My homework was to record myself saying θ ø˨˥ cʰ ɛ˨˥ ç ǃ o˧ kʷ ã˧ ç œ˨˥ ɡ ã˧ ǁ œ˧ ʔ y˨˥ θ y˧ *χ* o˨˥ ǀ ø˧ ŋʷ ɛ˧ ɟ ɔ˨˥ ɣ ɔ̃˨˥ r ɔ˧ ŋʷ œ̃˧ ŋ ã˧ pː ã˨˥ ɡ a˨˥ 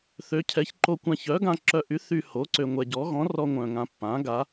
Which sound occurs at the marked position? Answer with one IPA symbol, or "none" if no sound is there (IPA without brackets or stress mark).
h